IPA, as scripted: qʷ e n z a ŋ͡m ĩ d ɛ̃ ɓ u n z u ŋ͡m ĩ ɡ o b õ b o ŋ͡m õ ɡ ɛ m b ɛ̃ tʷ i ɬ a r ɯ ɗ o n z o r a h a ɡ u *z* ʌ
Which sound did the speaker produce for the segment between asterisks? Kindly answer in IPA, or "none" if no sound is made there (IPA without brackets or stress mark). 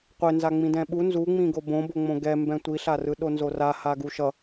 ʃ